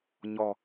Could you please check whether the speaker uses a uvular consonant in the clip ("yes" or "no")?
no